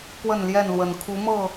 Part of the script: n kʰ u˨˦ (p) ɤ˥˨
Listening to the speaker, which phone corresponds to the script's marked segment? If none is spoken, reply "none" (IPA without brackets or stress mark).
m